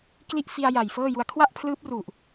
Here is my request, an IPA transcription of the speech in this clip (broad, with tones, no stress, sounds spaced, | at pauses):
k l i˥˩ ʔ f i˧ a̯ j a˨˩ j f ɤː˥˩ j u˧ a̯ kʰ w a˥˩ ʔ pʰ l ɯː˦˥ p̚ r u˨˩ ʔ